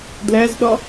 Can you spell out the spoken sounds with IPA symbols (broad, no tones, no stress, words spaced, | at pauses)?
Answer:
dlæzɗɒ